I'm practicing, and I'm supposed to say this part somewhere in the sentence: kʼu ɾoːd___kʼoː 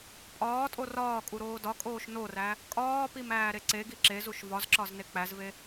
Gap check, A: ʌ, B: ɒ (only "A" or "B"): B